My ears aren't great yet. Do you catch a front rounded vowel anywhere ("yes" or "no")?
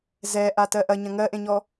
no